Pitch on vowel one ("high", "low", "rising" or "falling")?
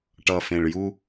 low